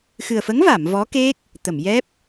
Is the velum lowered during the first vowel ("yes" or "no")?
no